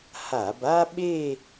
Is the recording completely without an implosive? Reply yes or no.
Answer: no